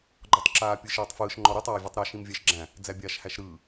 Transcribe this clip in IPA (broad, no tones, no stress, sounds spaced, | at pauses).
ɡ͡ǃ ɔ tˤ ǁ aː pʲ ɯ ʃ eː tˤ f ɯː ʃ ŋ͡ǃ ɔ ɾ i tˤ aː vʲ e tˤ ɾ a ʃ ĩ m vʲ æ ʃ ɡ͡ǁ æ̃ | d͡z æ bʲ aː ʃ h æ ʃ ɾ ɯː